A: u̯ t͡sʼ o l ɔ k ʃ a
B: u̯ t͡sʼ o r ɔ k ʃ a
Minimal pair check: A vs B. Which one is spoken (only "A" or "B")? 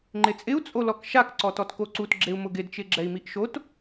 A